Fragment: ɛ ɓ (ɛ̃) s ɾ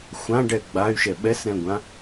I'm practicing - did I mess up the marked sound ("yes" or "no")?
yes